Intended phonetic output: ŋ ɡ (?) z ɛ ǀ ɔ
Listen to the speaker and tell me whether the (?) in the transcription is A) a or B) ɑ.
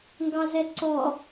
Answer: B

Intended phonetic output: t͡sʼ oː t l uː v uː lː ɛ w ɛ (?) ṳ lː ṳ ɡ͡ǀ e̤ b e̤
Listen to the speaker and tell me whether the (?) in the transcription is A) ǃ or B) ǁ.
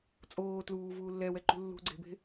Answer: A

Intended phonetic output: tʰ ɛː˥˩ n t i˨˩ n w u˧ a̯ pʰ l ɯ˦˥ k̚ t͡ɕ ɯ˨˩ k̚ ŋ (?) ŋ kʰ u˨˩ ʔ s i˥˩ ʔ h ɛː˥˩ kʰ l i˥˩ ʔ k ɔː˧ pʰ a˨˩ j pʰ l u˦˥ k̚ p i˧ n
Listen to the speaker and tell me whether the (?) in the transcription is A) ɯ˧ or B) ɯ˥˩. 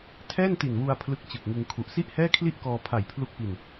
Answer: A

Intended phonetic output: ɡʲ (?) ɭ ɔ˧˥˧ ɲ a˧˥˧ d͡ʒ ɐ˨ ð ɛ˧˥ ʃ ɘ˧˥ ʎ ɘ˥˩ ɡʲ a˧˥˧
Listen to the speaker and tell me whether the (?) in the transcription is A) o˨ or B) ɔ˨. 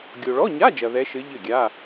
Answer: A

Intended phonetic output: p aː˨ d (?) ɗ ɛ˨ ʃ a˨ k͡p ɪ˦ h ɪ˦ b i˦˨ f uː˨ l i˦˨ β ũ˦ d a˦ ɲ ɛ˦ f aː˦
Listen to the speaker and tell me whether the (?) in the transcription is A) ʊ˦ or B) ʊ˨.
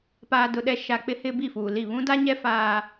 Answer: B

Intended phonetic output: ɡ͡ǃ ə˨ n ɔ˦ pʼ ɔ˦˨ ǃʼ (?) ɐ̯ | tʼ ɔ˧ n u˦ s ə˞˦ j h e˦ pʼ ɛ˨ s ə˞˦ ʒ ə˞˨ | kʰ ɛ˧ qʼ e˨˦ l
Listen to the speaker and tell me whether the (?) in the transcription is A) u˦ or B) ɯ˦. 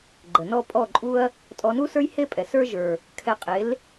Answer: A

